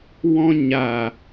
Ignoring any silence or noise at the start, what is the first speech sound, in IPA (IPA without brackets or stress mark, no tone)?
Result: w